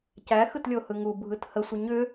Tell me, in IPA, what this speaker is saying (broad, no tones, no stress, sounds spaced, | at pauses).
c æ x ɯ t lʲ o h ɯ ŋ u bʱ ɯ t h ə sʷ ə ɲ ʏ